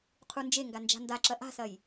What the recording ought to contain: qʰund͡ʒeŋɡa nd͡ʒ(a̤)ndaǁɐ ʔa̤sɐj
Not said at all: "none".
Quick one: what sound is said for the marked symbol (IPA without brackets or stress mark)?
a̤